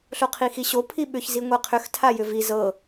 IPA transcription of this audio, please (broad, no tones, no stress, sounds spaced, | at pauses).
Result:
ɬ o qʰ i x i ɕ o pʰ i ɓ ʏ ç z i ŋʷ ɛ qʰ ʏ x tʰ a j ʏ v i z ɤ